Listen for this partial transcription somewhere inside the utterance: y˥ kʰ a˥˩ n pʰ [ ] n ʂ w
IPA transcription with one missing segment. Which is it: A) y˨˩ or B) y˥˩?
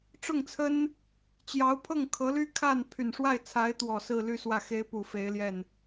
A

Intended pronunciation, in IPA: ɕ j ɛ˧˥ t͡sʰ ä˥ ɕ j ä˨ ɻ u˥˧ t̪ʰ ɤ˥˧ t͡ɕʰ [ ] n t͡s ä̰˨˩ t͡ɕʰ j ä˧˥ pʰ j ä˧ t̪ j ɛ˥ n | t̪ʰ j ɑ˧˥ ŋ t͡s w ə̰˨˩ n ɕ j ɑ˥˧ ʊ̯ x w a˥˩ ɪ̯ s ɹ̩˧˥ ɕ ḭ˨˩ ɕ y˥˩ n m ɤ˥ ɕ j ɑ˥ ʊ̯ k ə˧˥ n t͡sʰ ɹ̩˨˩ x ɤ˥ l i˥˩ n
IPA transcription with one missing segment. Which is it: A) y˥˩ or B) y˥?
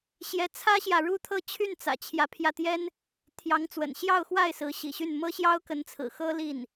A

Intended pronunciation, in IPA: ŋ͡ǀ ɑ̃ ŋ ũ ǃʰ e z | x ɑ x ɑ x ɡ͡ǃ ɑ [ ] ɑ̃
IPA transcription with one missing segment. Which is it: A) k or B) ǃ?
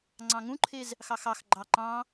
B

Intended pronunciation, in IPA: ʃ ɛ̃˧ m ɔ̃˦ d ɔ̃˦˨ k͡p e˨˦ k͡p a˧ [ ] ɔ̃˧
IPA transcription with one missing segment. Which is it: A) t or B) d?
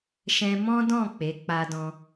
B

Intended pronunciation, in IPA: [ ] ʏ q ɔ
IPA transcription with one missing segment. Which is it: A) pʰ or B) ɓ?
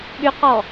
B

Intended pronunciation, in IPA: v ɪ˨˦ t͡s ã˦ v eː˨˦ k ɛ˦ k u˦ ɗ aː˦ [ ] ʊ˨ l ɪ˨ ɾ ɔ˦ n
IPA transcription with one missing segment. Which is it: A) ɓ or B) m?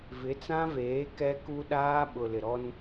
A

